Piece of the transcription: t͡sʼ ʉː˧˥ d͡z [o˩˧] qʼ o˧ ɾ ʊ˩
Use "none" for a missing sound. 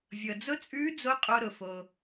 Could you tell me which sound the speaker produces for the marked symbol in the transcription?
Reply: o˧˥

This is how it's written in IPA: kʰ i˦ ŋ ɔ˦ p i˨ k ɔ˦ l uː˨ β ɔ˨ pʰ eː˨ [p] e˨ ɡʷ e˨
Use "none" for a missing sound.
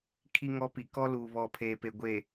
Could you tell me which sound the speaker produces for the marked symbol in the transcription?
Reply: p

